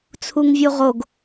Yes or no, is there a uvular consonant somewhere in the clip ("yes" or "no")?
yes